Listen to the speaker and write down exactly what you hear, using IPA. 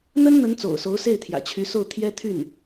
n̪ ə˥ n n̪ ə˧˥ n t͡s o̰˨˩ ʊ̯ s o˧˥ ʊ̯ s e˥˩ ɪ̯ t̪ʰ j ä̰˨˩ t͡ɕʰ y˧˥ s o˥˩ ʊ̯ t̪ʰ j ɛ˥ t̪ʰ y˥˩ n

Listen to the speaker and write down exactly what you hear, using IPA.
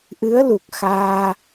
ʔ ɨ˨˦ ə̯ l u˨˩ k̚ x aː˧

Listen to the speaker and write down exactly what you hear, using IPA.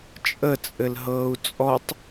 t͡ʃʼ ə t͡sʼ ɘ l ɦ ɤː u̯ t͡sʼ ɔ tˤ

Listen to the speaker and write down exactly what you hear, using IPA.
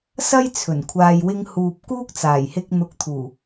s ɐ˥ j t͡sʰ ɵ˨˩ n kʷʰ aː˨ j w ɪ˧ ŋ h uː˨ p̚ k uː˥ k̚ t͡s aː˨˩ j h ɪ˧ k̚ n̪ ʊ˨˥ k̚ t̪ʰ uː˨˩

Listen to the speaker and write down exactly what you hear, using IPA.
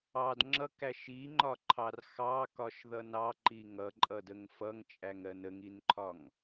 ɑ d ŋ͡ǁ ʌ k æ ʃ i ŋ͡ǃ ɒ ǃʰ ɑ r x ɑ k ɒ ʃ ð ʌ n ɑ ǃ i ŋ ʌ ǃʼ ʌ d ə ŋ f ʌ ŋ t͡ʃʼ æ ŋ ɜ n ə ŋ i n ǃʰ ɒ ŋ

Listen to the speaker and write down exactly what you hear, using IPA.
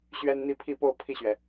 ɕ ɥ ɛ˥ n n̪ i˥˧ pʰ i˥˧ p o˥˧ ʊ̯ pʰ i˥˩ ɕ ɥ ɛ˩

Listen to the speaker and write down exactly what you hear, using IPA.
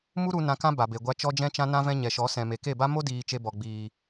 m u˦ ɾ u˧ n ã˧ k ã˦ b a˨ b e˨ ɡʷ a˧ t͡ʃ ɔ˧ d͡ʒ ɛ̃˧ t͡ʃ ã˧ n ã˧ v ɛ̃˧ ɲ ɛ˨ ʃ ɔ˨˦ s ɛ̃˨ m e˨ k e˦˨ b a˦ m o˦ d iː˨ t͡ʃ e˧ b ɔ˨ ɡ͡b iː˨

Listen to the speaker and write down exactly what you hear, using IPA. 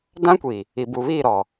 d ã˦ kʷ i˨ | i˨ b u˨ β iː˦˨ ɾ ɔ˨

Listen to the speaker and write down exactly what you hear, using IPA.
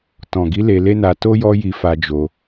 t ɔ̃˨ ɡ i˨˦ l e˧ l e˦ n a˧ t o˦ j ɔ˦ j i˧ f a˧ d͡ʒ o˧

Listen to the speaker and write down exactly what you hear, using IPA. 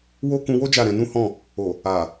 w o˦ k ũ˧ w o˦ d͡ʒ a˦˨ ɾ ɛ̃˧ n ũ˦ h ɔ̃˦˨ | o˨ | a˨

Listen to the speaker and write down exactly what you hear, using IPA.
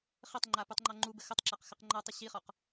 χ ɘ tˤ ŋ͡ǃ a p u tˤ ŋ͡ǃ ɒ ŋ͡ǃ u b ɘ x ə tˤ ǁ a q x ɘ q ŋ͡ǃ ɒ tˤ ɘ ɕ i χ ɒ q

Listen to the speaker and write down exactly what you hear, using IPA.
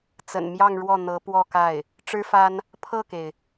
t͡s ə̰˨˩ n m j ɑ˥˧ ŋ ɻ w ɔ˥˩ n̪ ɤ˧˥ p w ɔ˥˧ k a˥˩ ɪ̯ | ʈ͡ʂ ɻ̩˥ f a˥ n | pʰ ɤ˥˩ k e˩ ɪ̯

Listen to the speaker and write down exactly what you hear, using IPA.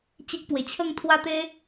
t͡ɕ e˦ k̚ p w e˧ t͡ɕʰ ə˥˧ ŋ t̪ʰ w a˥˧ t̪ e˦

